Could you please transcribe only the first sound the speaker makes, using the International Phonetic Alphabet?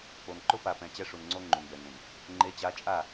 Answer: k͡p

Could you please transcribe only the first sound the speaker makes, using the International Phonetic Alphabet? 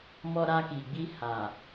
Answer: m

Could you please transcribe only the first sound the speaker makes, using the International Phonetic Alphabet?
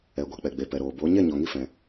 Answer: ɛ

